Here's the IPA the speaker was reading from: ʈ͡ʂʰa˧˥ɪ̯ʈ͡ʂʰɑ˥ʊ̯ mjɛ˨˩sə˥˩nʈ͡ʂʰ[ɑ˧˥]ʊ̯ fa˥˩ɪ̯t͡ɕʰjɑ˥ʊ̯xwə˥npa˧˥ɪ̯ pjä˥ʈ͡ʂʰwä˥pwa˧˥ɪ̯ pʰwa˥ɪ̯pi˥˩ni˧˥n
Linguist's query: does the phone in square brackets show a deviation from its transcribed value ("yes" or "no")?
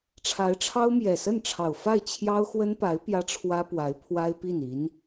yes